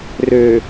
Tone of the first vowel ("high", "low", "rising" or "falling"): low